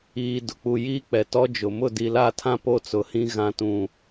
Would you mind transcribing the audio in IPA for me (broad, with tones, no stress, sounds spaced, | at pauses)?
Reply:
iː˨ d ʊ˨ k͡p u˨ j iː˦ k͡p ɛ˨ t ɔ˦ d͡ʒ ʊ˨ m ʊ˦˨ d i˨ l a˦˨ tʰ ã˦ p o˦ t͡s ʊ˨ h ĩ˦ ɣ ã˨ t ũ˨